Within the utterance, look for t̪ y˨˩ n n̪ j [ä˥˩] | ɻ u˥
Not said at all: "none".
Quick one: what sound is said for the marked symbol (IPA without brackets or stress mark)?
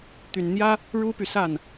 ä˥